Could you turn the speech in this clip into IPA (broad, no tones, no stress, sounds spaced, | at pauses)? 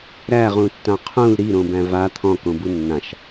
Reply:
ɾ æ ʁ ũ tː ã qʰ ũ l ɾ i ɾ õ b æ̃ v a t̪ʰ ɔ̃ k õ b u nː ã ʃ